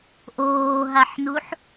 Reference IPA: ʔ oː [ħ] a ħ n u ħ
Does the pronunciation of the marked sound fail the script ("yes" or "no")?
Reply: yes